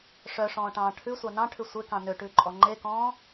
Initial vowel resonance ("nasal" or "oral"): oral